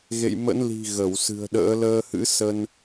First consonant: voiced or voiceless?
voiced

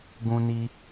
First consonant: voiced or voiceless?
voiced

